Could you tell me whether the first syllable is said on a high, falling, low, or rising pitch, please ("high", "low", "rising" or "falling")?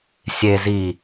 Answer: low